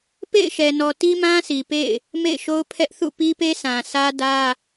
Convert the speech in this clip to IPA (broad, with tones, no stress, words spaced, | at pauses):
pḛ˦˨ɪ̯ʃɛ˨nɔ˨ ti˦mã˦si˨ pḛ˦˨ɪ̯ | mḛ˦˨ɪ̯ʃo˦ʊ̯ pʰɛ˦ʔ θṵ˦˨ pi˦pe˦sã˨ sä˦dä˦